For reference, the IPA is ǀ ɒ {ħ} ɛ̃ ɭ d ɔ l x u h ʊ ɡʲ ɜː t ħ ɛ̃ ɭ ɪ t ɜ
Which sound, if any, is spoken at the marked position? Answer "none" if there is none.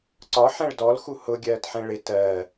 ħ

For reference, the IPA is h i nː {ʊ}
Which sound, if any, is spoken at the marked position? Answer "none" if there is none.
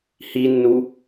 u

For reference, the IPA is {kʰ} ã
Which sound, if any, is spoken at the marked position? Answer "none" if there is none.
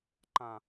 ǃ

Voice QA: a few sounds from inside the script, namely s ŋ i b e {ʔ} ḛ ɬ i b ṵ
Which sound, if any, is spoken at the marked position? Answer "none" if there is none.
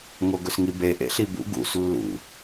ʔ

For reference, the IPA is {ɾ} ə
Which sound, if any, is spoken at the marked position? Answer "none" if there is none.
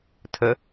tʰ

